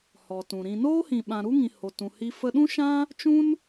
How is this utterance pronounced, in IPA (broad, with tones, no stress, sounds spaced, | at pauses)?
h ɔ˨ t ũ˨ ɾ ĩ˨ n oː˦ h ĩ˨ ɓ ã˨ ɾ u˦ ŋ ĩ˨ h o˨ t ũ˨ h i˧ f ə˧ ɗ ũ˦ ʃ ã˦ | t͡ʃ ũ˦ n